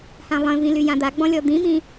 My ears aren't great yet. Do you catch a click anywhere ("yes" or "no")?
no